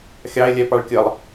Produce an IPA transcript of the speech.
xʲ ɑ e̯ lʲ ɛ p ɑ ɭ kʲ ə lˠ

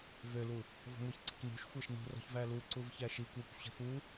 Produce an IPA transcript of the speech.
v ø l u | v ɔ̤ ŋʷ i ç ǀ e̤ kʷ n ṳ ʃ xʷ æ ʃ n ṳ r ɔ̤ ç v æ l u ǀ u v ç æ ʃ i kʷ æ kʷ ɕ ə̤ f u

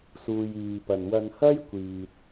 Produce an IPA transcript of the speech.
s uː˨ j iː˨ p ɐ˨ n w ɐ˧ n h ɐ˥ j kʷ iː˨ t̚

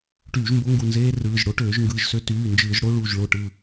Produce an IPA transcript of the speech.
ʈ yː˧˩˧ ʒ m b o˦˥ ŋ ɡ u˧˩ n z eː˦˥ r ɯː˩˧˩ ʒ ɽ o˦˥ ʈ øː˧˩˧ ʒ ŋ ɡ ɯː˩˧˩ ʒ s ø˦˥ t yː˩˧˩ n d͡ʒ ɯː˧˩˧ ʒ ɽ o˦˥ ɭ uː˧˩ ʒ ɭ o˧˩ ʈ ɯ˧˩

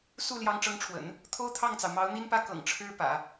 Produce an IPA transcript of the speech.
s u˥˩ l j ɑ˧˥ ŋ ʈ͡ʂ ɤ˧˥ ŋ ʈ͡ʂʰ w ə̰˨˩˦ n | t̪ʰ o˥ ʊ̯ t̪ʰ ɑ˥˩ ŋ t͡s ɑ˩ ʊ̯ m ɑ˧˥ ʊ̯ n̪ i˥ n p ä˥˩ k ɤ̰˨˩ ŋ ʈ͡ʂʰ ɻ̩˥ p ä̰˨˩˦

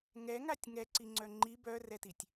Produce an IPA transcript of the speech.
ŋ ɛ ŋ a tʲ ŋ ɛ ǀ i ŋ͡ǀ œ ŋ͡ǃ i b œ r ɛ t i tʲ

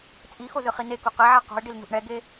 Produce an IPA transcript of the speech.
t͡sʼ i x o z ɯ χ i n e k u q e ʕ a q ṳ ɪ̯ ɖ i l n ṳ ʔ ɳ ɛ ɡ e

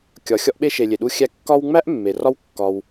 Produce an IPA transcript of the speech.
kʲ ɒ˩ xʲ ɒ˦ ʔ ɓ e˦ ʃ e˩ lʲ e˩ ɗ u˦ xʲ æ˦ kː ɒ˦ w ŋ͡m æ˥ ʔ mː e˩ r ɒ˥ w kː ɒ˨ w

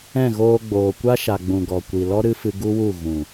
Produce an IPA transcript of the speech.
ɛ̃˦˨ ɣ oː˧ ɡ͡b oː˨ kʷ a˦ ʃ a˨ ɡ͡b ũ˨ ɡ ɔ˨ kʷ i˨ l ɔ˦ ɾ ɨ˦ f ɨ˧ ɡ u˦ w u˦˨ ɣ ũ˨

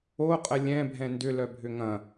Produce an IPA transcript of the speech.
o qʼ ə lʲ ɛ̃ bʱ ɛ̃ n d ʏ l œ bʱ ʏ ŋ ɐ̃

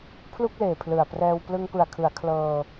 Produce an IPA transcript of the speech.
pʰ l u˥˩ k̚ l eː˨˩ pʰ l ɯ˨˩ a̯ p r ɛː˧ w p l ɯ˧ ŋ p ɯ˨˩ a̯ kʰ ɯ˩˦ a̯ kʰ l ɤː˧

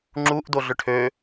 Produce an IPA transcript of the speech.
ŋ͡ǁ u ʔ d o ɮ ʏ ʈʰ ø

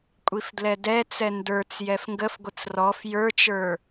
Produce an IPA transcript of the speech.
kʷʼ i f d l ɛ d ɛ t͡s ɛ n d ə˞ t͡s j ɛ f ŋ ɡ ə f ɡʷ ə t͡s r ɔ f j ə˞ t͡ʃ ə˞

